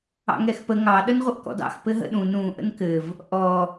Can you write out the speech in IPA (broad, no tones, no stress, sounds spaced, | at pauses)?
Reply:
ɑ̰ ŋ ɛ x p ə ŋ ɑ ɗ ə n ʁʷ ə ʔ k ɔ̰ d ɑ̰ x p ɘ ɦ ə̰ ɗ ũ n ũ ʔ ə̰ n k ɘ v | ʔ ɔ